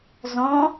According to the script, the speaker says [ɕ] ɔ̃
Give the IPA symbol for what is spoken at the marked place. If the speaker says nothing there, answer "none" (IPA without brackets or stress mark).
z